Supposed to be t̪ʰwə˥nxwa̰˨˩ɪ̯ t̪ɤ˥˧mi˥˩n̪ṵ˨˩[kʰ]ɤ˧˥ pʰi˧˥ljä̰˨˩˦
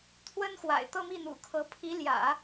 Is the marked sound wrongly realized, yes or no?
no